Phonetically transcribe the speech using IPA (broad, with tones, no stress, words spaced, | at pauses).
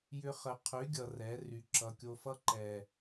jʏ˦χə˧ qʰy˨˦ɡʲʌ˨ rɛ˨˦ ry˨ ǁʌ˨kʲo˧fʌ˦ ǃɛ˨